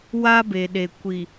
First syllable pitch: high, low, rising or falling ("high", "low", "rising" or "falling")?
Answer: high